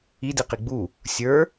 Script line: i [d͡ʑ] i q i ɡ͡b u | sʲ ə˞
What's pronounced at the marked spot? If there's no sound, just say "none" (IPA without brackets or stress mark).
d